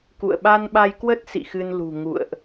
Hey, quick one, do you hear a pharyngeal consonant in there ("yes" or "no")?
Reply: no